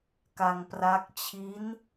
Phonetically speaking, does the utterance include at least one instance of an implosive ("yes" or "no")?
no